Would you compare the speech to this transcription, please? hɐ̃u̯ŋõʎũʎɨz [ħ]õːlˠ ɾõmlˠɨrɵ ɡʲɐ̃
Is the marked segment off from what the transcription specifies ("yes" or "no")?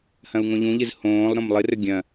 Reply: yes